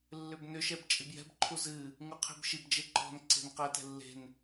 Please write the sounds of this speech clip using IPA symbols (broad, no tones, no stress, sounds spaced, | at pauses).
lː ʏ b n ʏ ʃ ɛ b t͡ʃʼ i b j ɛ̤ b ǃʰ u z ɨ | ŋ u qʰ e̤ b ʃ i b d͡ʒ e ǃ ɔ̤ n ǀ e̤ n q ɛ t ɛ̤ lː e̤ n